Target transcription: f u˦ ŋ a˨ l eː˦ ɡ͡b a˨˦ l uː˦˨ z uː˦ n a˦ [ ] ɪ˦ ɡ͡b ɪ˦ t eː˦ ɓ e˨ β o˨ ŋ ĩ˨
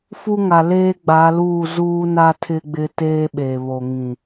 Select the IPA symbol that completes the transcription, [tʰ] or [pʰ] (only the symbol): tʰ